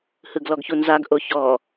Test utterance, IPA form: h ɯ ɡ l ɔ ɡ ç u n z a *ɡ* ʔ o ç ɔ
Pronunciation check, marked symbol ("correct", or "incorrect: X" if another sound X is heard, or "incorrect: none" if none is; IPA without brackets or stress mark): correct